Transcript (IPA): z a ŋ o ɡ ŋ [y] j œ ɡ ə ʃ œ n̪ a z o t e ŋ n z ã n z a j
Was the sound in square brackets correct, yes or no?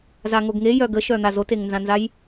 no